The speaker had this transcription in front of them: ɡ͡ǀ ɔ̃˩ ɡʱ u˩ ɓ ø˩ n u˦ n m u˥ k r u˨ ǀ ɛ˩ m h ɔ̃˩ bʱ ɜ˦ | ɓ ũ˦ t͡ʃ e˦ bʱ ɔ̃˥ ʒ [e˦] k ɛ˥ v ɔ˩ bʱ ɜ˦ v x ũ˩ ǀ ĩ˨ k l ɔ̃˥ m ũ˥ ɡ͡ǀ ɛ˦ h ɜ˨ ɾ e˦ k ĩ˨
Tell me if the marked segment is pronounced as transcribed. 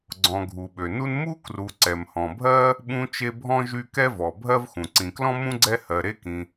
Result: no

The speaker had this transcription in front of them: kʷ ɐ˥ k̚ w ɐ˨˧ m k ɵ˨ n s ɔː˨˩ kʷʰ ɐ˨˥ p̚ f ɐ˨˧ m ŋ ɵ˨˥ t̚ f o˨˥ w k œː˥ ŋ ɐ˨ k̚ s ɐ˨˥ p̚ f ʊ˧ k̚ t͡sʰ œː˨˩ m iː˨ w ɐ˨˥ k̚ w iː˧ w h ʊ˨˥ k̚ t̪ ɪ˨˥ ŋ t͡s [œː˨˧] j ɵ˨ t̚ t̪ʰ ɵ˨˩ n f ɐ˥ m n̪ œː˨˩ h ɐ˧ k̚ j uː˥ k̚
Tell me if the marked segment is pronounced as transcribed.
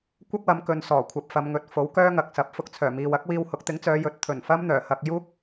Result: yes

